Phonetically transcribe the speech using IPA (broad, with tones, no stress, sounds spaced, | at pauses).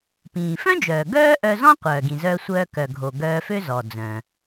p ĩː˩ f œ̃˥ d͡ʒ œː˩ ɡ œː˥ ʔ œ˧ z ɔ̃˥ qʷ œː˩ ɡ ĩ˩ z œː˧ sʷ œː˧ k œ˩ ɡʱ o˩ ɡ œː˧ f ø˥ z ɔ˩ d͡z œ̃˩